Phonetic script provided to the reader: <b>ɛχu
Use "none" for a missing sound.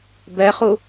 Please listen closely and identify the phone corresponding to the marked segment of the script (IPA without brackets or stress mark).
b